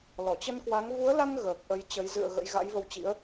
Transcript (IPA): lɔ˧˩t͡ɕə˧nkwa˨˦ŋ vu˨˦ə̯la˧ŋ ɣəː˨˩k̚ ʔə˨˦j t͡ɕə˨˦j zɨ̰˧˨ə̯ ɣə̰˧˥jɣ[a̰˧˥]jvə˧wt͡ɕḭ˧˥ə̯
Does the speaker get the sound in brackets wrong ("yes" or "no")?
no